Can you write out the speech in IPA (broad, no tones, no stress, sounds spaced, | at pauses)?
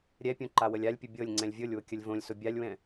ɾʲ ɛ pʲ õ ǃ a w ə lʲ a lʲ pʲ ʊ bʲ ɤ lʲ ŋ͡ǀ ɛ̃ lʲ vʲ ɤ lʲ w ʊ kʲ ə lʲ v õ lʲ s ʊ bʲ a lʲ w ɛ̃